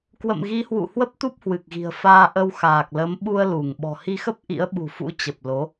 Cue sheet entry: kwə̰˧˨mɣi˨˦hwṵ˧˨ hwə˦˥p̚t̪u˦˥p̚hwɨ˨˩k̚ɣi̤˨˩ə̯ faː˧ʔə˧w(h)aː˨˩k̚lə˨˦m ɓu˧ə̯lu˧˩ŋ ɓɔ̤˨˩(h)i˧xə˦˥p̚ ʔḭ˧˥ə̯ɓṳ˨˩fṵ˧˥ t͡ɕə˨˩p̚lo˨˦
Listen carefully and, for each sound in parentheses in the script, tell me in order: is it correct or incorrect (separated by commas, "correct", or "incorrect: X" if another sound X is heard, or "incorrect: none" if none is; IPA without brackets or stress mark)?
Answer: incorrect: x, correct